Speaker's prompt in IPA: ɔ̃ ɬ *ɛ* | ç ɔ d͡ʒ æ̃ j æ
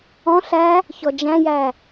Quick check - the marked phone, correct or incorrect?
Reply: incorrect